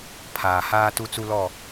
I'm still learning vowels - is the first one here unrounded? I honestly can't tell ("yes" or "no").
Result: yes